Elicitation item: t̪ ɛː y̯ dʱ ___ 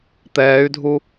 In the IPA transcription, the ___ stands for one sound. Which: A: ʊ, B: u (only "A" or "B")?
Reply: B